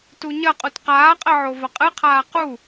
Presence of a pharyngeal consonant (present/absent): present